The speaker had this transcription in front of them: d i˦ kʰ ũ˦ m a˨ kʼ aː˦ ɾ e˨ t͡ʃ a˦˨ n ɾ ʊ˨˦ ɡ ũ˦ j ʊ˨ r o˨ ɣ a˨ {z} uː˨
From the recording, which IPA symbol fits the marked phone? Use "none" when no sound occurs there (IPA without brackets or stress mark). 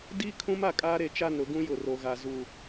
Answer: z